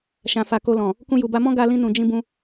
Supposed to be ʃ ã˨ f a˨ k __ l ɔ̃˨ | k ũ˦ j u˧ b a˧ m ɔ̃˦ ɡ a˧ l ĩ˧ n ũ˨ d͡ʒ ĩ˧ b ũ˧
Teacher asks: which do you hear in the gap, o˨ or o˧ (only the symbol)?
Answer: o˧